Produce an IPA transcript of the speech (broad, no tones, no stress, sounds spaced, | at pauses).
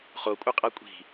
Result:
χ o kʷʼ ɯ qʼ ʌ kʷʼ i̤